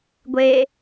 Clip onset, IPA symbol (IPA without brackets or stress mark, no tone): ɡʷ